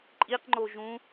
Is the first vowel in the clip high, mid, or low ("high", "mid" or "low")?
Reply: high